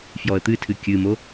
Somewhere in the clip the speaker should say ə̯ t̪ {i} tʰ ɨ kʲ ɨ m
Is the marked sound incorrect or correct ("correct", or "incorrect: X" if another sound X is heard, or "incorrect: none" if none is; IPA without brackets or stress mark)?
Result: incorrect: ɨ